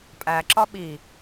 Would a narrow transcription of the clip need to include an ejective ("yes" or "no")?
yes